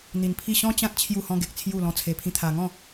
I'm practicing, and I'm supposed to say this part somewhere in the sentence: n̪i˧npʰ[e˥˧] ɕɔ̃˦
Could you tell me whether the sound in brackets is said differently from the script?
yes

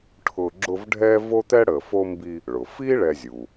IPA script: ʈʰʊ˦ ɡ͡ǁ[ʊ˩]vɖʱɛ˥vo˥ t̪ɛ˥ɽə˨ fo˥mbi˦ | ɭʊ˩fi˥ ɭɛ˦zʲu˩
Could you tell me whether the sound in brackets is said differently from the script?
yes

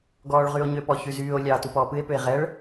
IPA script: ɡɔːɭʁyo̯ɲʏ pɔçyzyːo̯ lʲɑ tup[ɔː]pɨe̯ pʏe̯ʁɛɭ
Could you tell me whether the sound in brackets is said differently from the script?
no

